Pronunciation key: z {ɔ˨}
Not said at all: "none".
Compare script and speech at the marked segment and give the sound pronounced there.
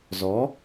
ɔ˨˦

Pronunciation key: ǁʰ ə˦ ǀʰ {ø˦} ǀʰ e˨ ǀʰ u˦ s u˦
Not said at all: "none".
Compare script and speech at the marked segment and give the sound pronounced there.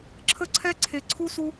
ɛ˦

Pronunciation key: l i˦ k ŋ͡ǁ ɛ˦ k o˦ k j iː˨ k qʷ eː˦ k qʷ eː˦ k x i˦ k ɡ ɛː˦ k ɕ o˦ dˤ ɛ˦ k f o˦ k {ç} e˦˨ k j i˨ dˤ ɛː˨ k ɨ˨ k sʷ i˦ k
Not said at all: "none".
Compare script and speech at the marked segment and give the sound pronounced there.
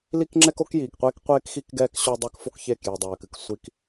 ç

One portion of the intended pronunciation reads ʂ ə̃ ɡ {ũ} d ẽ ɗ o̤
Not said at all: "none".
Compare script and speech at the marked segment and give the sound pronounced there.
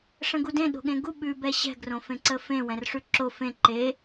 u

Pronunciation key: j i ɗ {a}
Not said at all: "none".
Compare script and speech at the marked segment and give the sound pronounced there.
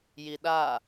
a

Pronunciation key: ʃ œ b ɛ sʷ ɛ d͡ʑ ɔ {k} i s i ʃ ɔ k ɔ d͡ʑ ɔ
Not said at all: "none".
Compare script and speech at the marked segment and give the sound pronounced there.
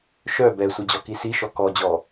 k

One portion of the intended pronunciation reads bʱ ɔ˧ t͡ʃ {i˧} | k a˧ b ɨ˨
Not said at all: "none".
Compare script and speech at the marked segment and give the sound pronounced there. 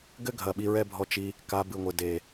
i˧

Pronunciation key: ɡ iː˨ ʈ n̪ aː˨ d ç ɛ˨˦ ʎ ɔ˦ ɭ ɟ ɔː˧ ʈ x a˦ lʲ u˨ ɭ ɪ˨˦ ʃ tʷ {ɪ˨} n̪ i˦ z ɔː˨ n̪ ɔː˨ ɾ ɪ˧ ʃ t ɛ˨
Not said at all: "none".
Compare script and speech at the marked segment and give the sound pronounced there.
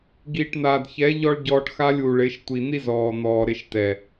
i˨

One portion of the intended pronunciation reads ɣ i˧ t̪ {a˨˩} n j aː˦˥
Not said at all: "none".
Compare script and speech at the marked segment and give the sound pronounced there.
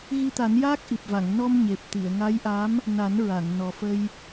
a˨˩˦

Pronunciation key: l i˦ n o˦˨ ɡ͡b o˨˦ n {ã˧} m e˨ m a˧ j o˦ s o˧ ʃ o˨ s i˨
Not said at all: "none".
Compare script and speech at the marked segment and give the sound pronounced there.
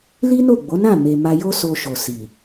ã˦˨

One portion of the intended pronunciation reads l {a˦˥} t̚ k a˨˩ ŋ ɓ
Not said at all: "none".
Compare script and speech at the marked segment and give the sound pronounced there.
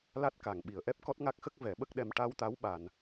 a˦˥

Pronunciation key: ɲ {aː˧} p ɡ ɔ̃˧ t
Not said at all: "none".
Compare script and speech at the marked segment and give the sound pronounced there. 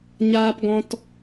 aː˧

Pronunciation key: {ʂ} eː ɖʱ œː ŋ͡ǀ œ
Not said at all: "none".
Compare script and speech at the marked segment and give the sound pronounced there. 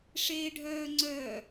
ʂ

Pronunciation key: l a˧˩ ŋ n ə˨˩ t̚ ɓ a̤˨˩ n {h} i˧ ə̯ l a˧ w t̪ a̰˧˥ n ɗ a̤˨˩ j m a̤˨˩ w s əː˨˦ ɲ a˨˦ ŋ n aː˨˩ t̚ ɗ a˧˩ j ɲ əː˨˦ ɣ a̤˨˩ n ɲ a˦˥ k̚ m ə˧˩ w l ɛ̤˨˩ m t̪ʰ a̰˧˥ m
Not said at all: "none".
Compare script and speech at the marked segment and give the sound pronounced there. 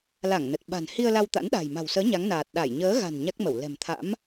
h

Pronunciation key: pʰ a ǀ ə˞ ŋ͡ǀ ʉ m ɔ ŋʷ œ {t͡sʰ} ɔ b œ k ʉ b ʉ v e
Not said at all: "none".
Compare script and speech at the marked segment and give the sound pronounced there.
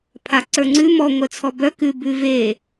t͡sʰ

